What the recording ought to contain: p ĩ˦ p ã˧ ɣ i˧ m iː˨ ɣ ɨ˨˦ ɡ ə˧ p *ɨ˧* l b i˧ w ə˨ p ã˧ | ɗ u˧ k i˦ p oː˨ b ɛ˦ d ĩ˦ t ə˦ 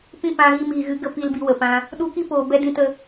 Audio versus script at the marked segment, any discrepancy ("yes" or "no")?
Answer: yes